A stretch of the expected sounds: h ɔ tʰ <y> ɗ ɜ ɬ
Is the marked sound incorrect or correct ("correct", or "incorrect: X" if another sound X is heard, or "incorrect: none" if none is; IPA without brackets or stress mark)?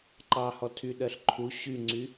correct